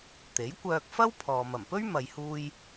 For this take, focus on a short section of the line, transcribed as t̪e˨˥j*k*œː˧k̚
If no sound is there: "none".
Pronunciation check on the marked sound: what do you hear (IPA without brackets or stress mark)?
kʷ